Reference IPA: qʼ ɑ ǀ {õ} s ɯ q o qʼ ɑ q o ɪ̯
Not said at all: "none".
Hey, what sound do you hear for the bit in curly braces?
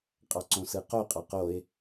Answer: õ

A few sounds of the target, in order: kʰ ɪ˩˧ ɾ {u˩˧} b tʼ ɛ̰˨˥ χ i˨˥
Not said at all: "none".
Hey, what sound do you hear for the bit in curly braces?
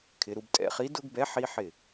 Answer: u˩˧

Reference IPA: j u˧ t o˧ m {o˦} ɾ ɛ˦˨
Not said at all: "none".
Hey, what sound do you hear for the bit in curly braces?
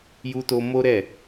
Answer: o˦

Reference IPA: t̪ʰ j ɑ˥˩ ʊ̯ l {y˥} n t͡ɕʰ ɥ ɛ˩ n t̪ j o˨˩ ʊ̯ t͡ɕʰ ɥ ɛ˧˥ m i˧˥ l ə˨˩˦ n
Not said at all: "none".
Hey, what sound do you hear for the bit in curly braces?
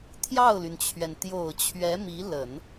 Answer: y˩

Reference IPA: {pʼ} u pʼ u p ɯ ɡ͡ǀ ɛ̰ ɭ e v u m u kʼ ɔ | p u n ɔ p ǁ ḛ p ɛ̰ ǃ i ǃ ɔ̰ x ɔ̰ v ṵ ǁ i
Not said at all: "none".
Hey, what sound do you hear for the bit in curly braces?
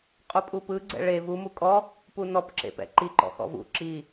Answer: qʼ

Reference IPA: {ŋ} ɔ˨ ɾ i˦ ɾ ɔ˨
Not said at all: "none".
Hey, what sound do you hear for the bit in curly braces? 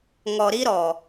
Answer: ŋ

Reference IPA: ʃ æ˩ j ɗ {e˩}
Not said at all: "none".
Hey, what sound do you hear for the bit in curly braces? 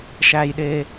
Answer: e˩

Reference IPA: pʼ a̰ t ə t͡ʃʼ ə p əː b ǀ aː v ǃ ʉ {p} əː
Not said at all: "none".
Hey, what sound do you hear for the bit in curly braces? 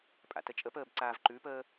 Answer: p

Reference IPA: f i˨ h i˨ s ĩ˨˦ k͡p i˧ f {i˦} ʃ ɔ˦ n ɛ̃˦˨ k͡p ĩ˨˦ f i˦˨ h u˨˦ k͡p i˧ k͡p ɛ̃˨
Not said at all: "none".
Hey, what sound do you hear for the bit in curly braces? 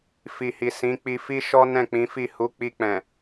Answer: i˦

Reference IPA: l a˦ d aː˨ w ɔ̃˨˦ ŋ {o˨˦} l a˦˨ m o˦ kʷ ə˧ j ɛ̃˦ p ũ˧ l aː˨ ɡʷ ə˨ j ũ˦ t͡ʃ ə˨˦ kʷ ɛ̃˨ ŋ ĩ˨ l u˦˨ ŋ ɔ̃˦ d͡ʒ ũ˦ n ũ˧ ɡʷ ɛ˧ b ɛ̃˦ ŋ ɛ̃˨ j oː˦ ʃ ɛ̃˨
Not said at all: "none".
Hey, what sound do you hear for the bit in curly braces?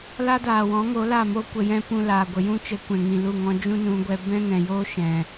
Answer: o˨˦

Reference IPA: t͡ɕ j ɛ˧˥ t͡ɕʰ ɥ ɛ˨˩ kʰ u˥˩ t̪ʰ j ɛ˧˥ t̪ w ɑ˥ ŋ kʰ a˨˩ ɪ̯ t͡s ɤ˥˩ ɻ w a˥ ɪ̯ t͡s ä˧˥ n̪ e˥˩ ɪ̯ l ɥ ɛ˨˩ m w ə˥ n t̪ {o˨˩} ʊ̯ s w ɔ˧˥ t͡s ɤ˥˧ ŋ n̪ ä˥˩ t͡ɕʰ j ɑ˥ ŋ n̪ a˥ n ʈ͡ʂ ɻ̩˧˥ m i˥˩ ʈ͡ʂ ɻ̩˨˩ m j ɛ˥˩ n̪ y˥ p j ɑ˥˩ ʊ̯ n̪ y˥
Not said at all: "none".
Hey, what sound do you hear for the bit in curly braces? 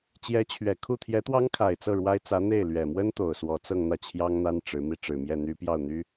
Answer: o˨˩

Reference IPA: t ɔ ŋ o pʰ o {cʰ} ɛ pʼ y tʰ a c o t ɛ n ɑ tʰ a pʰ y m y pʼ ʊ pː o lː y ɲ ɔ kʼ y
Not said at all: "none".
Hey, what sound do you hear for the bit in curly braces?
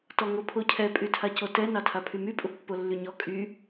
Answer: cʰ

